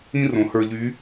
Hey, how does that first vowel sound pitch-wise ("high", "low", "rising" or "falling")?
high